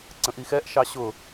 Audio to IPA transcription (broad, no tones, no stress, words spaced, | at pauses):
ǀə̃ʔixɛʔʃɑ ɕʊ